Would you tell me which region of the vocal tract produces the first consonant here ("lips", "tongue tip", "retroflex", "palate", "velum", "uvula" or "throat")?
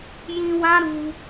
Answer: palate